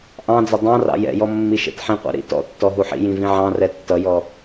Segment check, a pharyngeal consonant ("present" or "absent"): present